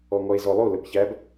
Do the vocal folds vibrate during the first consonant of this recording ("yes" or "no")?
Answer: yes